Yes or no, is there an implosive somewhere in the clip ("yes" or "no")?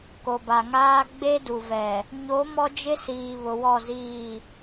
no